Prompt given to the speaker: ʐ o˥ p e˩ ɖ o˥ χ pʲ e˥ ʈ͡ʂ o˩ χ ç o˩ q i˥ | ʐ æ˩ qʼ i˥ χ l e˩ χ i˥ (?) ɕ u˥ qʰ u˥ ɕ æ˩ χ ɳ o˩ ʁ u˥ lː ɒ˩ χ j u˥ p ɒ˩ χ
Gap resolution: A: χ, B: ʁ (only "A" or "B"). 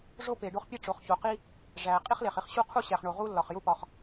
A